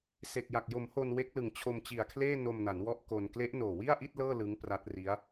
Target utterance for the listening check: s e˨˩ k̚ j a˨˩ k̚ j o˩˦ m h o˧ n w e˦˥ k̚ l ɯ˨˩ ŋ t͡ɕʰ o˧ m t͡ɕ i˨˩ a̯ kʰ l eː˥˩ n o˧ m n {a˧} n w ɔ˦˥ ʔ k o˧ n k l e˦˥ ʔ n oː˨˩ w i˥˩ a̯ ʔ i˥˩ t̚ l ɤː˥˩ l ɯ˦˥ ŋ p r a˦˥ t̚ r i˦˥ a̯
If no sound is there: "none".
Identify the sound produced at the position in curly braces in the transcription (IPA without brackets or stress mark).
a˩˦